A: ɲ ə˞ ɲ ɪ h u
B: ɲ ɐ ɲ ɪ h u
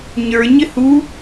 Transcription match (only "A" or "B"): A